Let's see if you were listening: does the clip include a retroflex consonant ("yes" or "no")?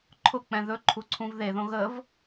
no